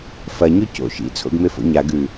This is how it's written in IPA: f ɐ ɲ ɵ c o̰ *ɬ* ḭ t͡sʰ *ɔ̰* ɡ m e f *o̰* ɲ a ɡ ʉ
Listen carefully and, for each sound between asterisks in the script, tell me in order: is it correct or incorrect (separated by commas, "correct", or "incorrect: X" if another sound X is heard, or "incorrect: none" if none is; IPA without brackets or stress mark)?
incorrect: ʃ, incorrect: o̰, correct